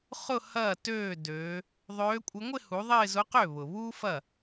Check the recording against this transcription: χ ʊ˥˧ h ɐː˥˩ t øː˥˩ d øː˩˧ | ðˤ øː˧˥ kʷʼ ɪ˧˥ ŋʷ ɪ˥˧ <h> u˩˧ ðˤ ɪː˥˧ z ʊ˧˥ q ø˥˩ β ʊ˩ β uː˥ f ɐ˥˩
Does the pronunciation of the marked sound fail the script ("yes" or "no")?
no